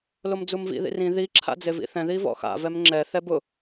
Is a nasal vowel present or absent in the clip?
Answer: present